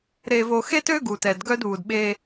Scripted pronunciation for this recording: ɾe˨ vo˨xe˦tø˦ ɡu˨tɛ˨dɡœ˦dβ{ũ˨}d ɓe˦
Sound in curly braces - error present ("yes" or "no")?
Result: yes